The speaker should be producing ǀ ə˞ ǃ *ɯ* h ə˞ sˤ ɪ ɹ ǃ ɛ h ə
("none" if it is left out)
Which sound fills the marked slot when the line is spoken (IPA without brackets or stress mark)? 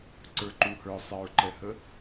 u